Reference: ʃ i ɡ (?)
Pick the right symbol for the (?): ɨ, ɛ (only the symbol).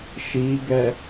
ɛ